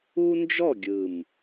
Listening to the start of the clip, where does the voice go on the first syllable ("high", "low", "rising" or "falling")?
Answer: high